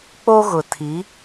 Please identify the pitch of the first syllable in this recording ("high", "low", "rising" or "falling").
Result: high